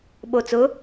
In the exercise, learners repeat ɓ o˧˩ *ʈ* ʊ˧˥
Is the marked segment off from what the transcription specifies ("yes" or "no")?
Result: yes